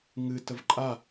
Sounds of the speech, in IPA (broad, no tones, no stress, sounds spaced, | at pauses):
ŋ ɨ t ə v ǃʼ a